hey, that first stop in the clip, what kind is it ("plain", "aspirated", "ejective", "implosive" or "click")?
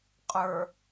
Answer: ejective